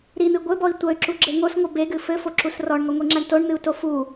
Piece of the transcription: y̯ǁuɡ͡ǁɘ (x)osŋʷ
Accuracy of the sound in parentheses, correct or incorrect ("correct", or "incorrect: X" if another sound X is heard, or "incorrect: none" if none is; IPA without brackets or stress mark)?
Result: incorrect: ŋ